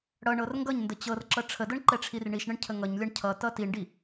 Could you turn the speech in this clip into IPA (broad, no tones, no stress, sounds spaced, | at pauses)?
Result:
ɽ ʌ ɳ ɤ r ŋ ɡ ʌ ɲ n d ə t͡ɕ ɤ r ǁ ʌ ʈ͡ʂʰ ə d ɤ ɳ ǃ ɛ ʈ͡ʂʰ i r ɳ i ʃ ɳ ə ɳ cʰ ə ŋ ʌ ɲ lʲ ʌ ɳ cʰ ʌ t ʌ t i ɳ ɖ i